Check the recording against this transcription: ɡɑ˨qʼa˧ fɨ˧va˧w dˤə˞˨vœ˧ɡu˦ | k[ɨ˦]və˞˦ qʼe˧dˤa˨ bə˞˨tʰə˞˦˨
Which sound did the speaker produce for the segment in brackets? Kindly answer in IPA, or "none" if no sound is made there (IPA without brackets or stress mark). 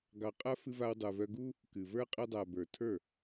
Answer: ɨ˨